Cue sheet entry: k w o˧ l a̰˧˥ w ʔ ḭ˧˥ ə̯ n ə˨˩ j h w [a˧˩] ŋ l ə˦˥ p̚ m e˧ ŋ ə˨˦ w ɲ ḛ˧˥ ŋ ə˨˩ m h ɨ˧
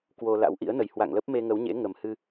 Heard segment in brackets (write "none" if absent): a̰˧˨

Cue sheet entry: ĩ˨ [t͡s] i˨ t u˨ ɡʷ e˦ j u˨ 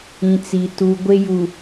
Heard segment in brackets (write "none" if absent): t͡s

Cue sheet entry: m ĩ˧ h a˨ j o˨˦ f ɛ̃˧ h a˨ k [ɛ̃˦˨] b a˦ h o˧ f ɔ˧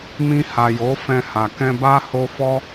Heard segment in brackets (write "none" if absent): ɛ̃˧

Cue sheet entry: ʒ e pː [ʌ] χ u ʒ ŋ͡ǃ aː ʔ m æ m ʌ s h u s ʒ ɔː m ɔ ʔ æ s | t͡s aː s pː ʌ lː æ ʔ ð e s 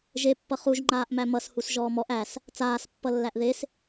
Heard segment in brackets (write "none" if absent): ʌ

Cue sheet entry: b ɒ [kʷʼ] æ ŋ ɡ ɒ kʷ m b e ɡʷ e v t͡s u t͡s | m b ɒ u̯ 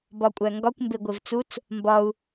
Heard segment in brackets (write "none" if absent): kʷʼ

